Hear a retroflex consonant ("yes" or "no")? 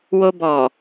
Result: no